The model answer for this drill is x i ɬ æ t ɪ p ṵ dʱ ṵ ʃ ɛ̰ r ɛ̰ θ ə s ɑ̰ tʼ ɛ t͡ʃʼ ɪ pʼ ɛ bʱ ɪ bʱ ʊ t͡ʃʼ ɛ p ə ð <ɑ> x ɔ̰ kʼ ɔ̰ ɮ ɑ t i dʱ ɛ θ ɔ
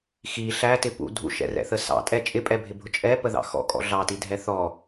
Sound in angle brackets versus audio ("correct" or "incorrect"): incorrect